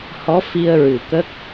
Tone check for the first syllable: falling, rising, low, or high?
rising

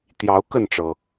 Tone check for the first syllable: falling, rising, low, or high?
rising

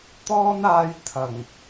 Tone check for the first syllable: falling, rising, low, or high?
high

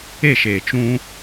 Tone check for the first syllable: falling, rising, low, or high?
falling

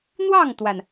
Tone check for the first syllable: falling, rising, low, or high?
falling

